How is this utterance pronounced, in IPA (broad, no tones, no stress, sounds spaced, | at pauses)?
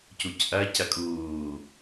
c u c ʔ ɐ c ɐ kʼ uː